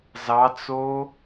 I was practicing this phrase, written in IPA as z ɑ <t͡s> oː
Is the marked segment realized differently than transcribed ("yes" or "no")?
no